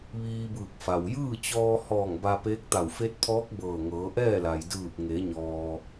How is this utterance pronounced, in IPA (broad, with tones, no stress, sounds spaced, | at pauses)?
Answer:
ʋ iː˧ b ɯː˧˩ k̚ f a˩ w j ɯː˥˨ t͡ɕ ɔː˧ h ɔː˧˩ ŋ b a˧ p eː˧˥ k̚ t̪ a˧˩ w f e˧˥ t̚ pʰ ɔː˧˥ k̚ b ɤː˧˩ ŋ ɤː˩˧ ʔ ɛː˥˨ l a˩ j d ɯː˧˩ p̚ ŋ e˩˧ ɲ ɔː˩